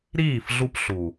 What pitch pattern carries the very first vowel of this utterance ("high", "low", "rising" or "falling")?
falling